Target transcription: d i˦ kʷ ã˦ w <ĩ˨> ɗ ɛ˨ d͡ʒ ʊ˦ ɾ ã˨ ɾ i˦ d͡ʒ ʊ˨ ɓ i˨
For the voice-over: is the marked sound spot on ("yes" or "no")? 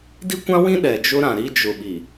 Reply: no